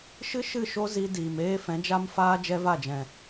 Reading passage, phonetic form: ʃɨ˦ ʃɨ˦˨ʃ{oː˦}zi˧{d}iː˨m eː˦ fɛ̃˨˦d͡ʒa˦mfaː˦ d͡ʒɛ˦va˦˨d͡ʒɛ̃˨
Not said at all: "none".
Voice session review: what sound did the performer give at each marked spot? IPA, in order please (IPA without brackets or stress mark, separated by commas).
o˦, d